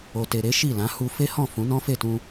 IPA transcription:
o˨ t e˨ ɾ e˨˦ ʃ i˦˨ l ã˨˦ h u˧ f e˦ h ɔ̃˦˨ f ũ˨˦ n ɔ̃˦ f e˦˨ t ũ˧

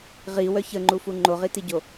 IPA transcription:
ʁ i w œ ç ə ŋ͡ǃ u f u ŋ͡ǃ o ʁ i t i ɟ o

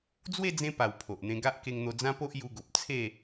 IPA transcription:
d͡z w e˥˧ d͡z ẽ˧ p a˨˩ w pʰ o˨ ʔ n̪ ẽ˧ ɡ a˦ ʔ k e˧ ŋ n̪ o˧ d͡z ã˦ p o˦ ʔ j u˧ ɡ o˨ p̚ t͡sʰ e˥˧

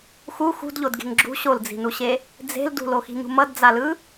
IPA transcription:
x u x ṳ d ʎ o d ɡ e̤ ŋ ɡ͡ǁ ṳ ɕ o l d͡z i̤ n u ɕ e | d͡z e̤ l d ṳ l o x i̤ ɲ ṳ m ʌ d d͡z a l ɯ

